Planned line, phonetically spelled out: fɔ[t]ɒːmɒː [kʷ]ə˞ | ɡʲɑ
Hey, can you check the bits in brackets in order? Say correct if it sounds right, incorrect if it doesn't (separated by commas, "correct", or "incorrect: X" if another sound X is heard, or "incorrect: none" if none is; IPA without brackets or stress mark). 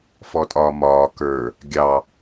incorrect: tʼ, incorrect: k